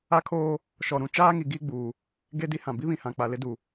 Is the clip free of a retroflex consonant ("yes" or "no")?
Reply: yes